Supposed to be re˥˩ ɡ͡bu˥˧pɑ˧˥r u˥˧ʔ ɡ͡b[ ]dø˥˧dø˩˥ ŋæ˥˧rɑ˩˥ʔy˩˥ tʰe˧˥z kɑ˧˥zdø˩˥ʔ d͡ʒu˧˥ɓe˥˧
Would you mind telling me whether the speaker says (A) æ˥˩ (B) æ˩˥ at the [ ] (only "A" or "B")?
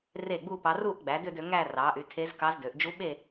B